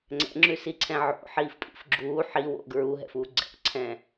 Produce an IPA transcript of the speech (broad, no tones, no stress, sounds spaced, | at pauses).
ŋ͡ǀ ɛ̰ ŋ͡ǁ ʉ s i ǀʰ ɛ̃ ʕ o̰ ħ iː f pʼ ḭ f ɡ͡ǁ uː ħ i w o̰ ɡ ɹ u ɦ ɛ̰ f uː ɡ͡ǀ ɛ̰ ǀʰ ɛ̃